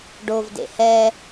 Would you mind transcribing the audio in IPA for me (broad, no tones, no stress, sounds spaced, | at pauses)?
ɖ o v d ḛ h ɛ